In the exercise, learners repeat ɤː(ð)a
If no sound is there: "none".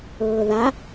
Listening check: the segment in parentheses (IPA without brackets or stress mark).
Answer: ð